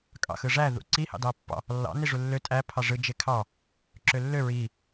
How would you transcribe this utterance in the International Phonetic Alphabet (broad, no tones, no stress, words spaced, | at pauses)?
kʼɑ̰xɯʐæ ðṵǀi hɑ̰dɑpːɑ̰ | lːɑ̰ niʐulːø tʼæ pʰɑʐɯ d͡ʒekʰɑ | ǁølːø ɹi